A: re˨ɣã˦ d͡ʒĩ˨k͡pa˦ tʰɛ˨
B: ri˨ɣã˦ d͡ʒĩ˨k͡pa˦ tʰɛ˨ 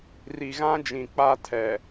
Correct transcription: B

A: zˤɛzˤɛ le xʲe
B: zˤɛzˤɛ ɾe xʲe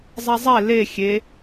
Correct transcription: A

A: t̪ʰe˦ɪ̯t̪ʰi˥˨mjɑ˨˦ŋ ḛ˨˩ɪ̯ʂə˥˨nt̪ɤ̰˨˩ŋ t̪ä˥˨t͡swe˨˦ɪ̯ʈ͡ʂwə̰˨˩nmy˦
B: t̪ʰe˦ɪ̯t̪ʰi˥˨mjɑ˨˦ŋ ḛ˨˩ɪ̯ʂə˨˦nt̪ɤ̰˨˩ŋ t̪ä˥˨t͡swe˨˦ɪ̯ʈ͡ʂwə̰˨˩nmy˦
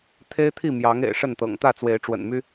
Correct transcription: A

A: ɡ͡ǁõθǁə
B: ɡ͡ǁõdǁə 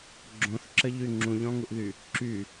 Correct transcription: A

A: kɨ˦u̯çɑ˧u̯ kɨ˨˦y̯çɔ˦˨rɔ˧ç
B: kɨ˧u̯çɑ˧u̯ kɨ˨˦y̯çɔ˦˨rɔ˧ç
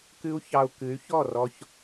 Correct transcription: A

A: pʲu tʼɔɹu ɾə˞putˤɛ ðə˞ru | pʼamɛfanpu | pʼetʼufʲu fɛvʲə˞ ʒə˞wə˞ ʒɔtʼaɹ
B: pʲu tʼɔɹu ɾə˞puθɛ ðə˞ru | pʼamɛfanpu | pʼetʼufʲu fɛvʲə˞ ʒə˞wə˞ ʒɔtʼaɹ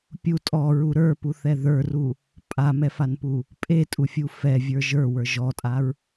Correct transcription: B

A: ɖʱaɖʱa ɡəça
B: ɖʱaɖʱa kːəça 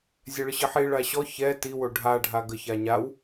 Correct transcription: A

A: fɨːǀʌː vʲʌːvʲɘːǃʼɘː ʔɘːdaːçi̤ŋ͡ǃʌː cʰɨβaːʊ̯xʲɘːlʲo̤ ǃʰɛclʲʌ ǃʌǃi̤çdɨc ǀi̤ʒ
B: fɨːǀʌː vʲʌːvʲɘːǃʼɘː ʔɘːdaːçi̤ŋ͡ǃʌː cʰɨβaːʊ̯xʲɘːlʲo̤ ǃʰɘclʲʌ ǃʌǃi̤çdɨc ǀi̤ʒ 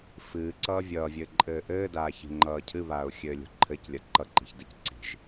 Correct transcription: B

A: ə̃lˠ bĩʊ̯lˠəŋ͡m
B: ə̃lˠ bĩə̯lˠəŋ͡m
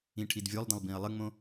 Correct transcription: B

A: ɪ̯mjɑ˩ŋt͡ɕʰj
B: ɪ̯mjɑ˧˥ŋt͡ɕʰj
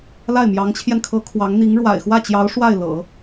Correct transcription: B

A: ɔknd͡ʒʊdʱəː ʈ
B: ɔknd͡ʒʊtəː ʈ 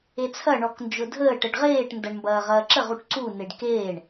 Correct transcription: A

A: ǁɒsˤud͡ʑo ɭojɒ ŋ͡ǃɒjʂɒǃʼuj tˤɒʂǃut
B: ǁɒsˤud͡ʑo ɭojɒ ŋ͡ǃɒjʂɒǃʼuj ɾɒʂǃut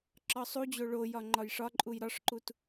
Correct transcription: B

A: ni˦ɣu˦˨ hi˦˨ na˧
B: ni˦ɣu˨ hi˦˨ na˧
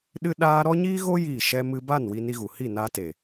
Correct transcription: B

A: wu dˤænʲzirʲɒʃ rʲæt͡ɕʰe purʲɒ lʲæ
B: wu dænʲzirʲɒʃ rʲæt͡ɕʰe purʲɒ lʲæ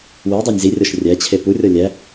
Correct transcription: A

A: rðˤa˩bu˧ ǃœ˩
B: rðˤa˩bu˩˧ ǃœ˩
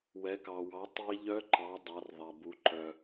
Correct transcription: B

